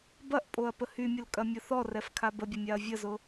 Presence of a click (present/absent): absent